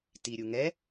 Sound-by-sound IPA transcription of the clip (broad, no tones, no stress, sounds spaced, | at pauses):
t i ɾʲ u ŋ ɛ